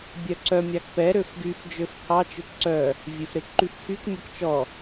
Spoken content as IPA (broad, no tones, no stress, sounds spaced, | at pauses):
bʲ œ ǀ œ mʲ ɑ k p ɛ ɾ ø f ɡ y f d͡ʒ ø f kʰ ɑ t͡ʃ ø k ǀ œ | vʲ e f ɾ e k ǃ y f kʰ y k mʲ ɔ k t͡ʃ ɔ